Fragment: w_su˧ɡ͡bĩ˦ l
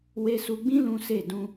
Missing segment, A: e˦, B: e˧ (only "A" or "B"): B